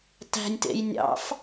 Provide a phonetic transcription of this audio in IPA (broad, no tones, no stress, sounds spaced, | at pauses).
t æ̤ nʲ t ḛ j nʲ ɑ̰ f